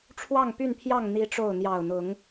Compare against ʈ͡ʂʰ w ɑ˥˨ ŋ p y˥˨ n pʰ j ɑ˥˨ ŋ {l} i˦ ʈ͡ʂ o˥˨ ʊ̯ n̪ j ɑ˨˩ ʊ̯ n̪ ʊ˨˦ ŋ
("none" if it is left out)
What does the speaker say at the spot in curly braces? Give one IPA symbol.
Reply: n̪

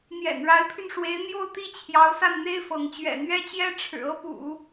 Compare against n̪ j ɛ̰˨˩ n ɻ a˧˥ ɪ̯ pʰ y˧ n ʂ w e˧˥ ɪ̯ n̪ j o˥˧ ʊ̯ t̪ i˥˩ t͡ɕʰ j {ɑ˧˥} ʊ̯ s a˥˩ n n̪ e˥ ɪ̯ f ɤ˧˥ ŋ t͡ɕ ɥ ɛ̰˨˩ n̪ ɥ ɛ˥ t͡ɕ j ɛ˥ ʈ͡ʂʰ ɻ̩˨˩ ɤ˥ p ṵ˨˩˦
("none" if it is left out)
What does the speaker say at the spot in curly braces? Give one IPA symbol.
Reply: ɑ˧˥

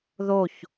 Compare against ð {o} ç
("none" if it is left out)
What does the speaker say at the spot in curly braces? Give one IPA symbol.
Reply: o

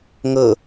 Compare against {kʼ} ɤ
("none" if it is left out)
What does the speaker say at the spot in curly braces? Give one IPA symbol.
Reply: ŋ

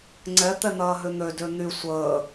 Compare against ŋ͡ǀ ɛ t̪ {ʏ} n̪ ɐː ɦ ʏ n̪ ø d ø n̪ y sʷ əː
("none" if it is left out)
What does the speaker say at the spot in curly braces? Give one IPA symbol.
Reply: ɛ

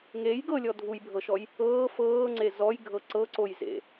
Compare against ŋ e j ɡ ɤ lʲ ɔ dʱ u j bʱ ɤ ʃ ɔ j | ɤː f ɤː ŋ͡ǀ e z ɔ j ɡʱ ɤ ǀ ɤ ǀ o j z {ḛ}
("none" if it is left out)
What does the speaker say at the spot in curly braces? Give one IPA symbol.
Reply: ḛ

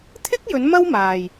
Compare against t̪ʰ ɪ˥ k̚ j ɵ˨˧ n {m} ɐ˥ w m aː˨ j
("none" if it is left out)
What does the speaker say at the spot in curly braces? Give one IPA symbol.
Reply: m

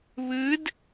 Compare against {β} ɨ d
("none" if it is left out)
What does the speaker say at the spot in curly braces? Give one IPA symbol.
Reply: β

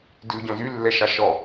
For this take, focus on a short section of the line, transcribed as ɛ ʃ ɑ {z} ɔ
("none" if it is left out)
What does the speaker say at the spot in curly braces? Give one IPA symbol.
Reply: ʃ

